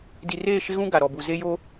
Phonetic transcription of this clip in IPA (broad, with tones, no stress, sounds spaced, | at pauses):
d i˨ r eː˦˨ ʃ ɪ˦ ɣ ũ˦ ɡ a˨ ɾ ɔ˨ b u˨ z e˦ j o˦